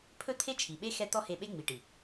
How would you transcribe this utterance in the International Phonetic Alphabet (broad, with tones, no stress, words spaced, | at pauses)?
pʰɵ˦t̪ʰe˦t͡ʃʰi˨ɓe˦ xɛ˦ t̪ɔ˦ he˧ɓe˦ŋ͡mi˨ʈi˨